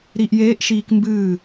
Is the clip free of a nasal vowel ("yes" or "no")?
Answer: yes